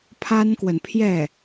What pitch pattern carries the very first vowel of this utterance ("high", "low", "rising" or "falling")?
high